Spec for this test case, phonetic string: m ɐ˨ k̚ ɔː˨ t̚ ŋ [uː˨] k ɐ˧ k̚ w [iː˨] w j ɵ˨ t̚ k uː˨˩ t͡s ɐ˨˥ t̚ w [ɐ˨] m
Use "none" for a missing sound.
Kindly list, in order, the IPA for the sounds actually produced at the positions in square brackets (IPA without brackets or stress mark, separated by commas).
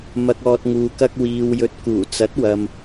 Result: uː˨, iː˨, ɐ˨